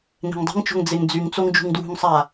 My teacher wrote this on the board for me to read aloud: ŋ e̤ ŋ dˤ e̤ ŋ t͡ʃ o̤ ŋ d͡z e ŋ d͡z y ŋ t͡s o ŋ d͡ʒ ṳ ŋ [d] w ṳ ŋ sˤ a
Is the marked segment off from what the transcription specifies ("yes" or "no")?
no